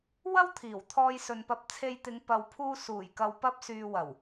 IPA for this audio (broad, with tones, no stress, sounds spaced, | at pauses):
w ɐ˥ w t̪ʰ iː˨˩ w t̪ʰ ɔː˧ j s ɵ˨ n p ɐ˧ p̚ t͡sʰ e˧ j t̪ ɪ˨˧ ŋ p ɐ˨ w pʰ uː˧ s uː˨˩ j k ɐ˨ w p ɐ˧ p̚ s yː˨ w ɐ˨˩ w